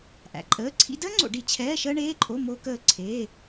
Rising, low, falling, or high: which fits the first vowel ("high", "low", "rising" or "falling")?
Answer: low